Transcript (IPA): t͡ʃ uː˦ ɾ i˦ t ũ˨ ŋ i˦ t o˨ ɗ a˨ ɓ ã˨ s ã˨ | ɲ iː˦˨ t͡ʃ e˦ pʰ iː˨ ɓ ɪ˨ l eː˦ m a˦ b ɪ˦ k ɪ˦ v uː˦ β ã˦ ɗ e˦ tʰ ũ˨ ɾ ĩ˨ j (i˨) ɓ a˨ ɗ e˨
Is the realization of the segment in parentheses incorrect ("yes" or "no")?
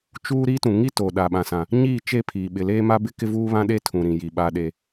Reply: no